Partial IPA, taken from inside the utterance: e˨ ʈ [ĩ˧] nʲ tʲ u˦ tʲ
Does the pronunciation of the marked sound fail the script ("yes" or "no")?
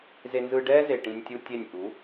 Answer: no